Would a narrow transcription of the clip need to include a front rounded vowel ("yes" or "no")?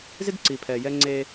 no